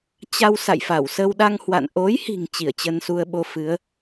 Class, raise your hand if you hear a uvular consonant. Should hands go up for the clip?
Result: no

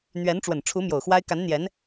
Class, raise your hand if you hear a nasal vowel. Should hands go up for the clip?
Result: no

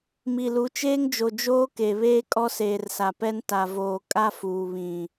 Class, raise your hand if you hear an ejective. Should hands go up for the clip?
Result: yes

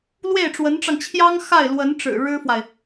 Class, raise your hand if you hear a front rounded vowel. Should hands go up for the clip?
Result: no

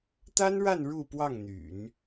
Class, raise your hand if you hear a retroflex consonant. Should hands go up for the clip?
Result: yes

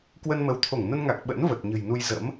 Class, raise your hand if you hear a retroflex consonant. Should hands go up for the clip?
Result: no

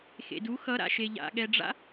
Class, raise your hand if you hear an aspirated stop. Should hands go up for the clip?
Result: no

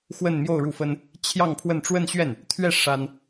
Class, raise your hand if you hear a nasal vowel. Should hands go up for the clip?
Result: no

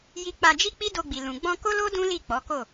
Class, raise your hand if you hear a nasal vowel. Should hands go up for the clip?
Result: yes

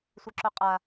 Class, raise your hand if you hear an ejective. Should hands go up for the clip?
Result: yes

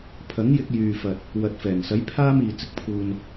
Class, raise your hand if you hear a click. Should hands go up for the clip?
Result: no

